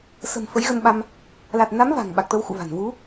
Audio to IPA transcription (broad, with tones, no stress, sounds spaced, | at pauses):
s ə̤˨˩ m f ə˨˦ j ɣ ə˧ n ɓ a˧ m | l a˨˩ t̚ n a˨˦ m v a̤˨˩ ŋ ɓ a˨˩ k̚ t̪ ə˧ w x ṵ˧˨ v a̤˨˩ n v u˨˦